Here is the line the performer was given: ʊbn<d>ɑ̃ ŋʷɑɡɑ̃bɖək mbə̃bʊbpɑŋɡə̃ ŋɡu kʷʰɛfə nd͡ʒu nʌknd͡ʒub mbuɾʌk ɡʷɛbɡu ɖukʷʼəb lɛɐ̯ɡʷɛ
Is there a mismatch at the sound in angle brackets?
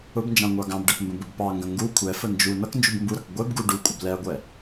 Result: yes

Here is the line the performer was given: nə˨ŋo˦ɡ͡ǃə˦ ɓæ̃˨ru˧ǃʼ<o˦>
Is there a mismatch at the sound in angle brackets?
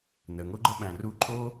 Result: no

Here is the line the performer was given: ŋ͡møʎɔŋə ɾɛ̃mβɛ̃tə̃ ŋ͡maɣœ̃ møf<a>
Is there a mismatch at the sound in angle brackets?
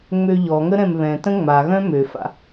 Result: yes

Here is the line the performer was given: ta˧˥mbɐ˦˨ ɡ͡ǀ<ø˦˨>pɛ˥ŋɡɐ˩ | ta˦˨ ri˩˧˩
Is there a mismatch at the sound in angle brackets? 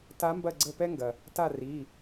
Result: yes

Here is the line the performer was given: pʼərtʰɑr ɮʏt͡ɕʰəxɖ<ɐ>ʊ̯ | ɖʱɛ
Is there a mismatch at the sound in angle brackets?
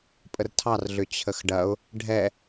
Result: no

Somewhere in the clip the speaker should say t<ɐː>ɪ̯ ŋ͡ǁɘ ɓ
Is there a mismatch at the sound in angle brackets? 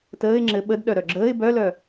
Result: yes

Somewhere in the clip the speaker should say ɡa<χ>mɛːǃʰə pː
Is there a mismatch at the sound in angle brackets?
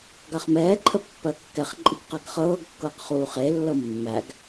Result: no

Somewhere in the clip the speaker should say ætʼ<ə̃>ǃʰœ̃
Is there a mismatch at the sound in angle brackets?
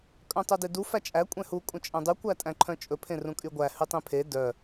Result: yes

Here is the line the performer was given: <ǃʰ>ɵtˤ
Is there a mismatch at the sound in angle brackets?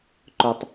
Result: yes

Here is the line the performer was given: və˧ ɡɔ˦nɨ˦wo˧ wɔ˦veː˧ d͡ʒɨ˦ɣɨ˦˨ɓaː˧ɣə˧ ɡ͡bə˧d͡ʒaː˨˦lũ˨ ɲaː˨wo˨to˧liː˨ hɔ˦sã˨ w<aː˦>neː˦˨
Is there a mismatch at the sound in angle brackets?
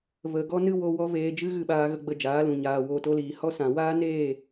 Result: no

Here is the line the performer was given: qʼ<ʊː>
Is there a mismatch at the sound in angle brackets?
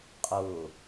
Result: no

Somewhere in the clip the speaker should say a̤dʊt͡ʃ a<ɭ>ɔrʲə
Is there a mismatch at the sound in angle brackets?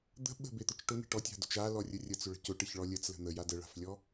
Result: yes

